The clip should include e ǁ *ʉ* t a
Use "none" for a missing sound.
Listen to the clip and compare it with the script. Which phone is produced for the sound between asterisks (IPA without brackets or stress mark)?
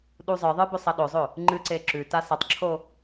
ʉ